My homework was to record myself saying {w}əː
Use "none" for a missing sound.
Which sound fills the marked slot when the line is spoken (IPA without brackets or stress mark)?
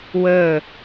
w